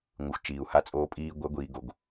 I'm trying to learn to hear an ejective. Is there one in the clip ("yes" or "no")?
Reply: yes